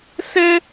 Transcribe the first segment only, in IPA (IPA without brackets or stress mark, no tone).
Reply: s